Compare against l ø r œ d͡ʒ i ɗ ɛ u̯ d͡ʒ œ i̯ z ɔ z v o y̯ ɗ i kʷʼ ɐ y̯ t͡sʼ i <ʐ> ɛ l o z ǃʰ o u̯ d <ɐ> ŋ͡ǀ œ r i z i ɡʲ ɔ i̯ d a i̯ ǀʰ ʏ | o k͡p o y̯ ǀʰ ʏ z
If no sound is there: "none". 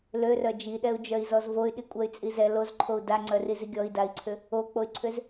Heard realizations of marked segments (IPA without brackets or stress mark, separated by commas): z, a